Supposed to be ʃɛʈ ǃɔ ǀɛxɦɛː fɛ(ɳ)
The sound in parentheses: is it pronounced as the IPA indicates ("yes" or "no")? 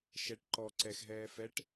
no